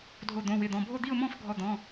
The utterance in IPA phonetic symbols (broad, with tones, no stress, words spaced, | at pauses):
dʱo˥˧d̪õ˧˥˧wɪ˧˥˧d̪ɔ̃˧˥˧ bʱo˥˧d̪i˥˧ʊ̯mɔ̃˥˧f ɡʱɔ˥˧d̪ɔ̃˧˥˧